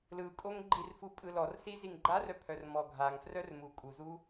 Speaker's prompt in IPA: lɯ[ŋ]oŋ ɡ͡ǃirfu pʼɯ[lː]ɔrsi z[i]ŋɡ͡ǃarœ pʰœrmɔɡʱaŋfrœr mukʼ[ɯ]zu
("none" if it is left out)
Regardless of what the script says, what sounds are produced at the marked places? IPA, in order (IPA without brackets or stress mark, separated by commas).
kʼ, l, i, u